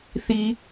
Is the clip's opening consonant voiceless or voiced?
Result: voiceless